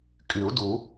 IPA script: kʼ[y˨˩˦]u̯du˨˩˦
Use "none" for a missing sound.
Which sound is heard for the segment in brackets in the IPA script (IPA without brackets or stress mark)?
y˨˩˦